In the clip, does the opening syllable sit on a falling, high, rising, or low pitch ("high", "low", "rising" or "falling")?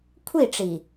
falling